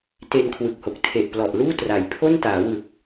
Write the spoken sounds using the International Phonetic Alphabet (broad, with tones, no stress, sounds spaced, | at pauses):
t e˧ n kʰ w ɯ˨˩ k̚ h o˨˩ k̚ tʰ e˨˩ ʔ p l ɔ˨˩ ʔ l uː˥˩ t r a˩˦ j pʰ o˥˩ n t aː˩˦ w ɯ˨˩ k̚